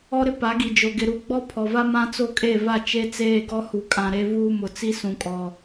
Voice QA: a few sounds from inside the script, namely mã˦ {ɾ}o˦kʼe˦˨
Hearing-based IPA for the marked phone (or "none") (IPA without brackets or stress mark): t͡s